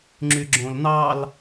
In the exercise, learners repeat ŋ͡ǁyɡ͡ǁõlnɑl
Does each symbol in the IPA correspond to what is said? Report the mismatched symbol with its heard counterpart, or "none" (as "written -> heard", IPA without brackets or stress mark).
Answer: none